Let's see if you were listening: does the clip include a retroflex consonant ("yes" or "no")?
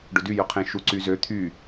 yes